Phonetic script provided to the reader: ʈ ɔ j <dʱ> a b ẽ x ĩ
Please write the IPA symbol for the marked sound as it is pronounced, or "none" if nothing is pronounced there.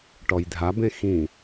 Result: dʱ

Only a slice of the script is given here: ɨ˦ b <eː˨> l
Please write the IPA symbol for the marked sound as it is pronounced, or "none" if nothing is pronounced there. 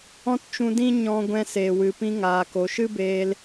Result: eː˧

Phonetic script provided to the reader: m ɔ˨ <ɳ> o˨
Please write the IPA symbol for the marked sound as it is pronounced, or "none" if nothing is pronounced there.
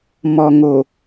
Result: ŋ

